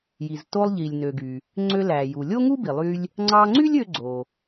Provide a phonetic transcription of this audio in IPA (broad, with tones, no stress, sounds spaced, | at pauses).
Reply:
j i˩ z t o˧ lˠ ʎ i˩ lʲ n ø˩ ɡ y˩ | ŋ͡ǀ ø˧ l æ˩ j u˩ lʲ o˥ ŋ u˥ b i˩ lˠ y˧ lʲ | ŋ͡ǀ ɑ˧ ŋ͡ǀ y˥ lʲ ø˧ ɡ͡ǀ o˩